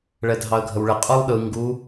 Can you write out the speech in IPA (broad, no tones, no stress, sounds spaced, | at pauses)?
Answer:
ɭ ɛ dʱ ɑ ə̯ ɡʱ ə w ɭ ɘ qʼ u lˠ ɗ ɯ ŋ ɡ u